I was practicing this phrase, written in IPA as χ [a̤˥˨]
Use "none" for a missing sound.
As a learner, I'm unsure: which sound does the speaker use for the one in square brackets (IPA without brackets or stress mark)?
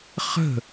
ə̤˥˨